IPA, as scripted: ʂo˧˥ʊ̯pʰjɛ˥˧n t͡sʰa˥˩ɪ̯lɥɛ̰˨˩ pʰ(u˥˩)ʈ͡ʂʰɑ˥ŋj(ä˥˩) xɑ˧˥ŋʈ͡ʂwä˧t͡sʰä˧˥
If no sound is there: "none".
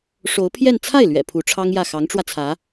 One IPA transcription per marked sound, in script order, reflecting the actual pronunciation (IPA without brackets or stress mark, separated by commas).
u˧˥, ä˥˩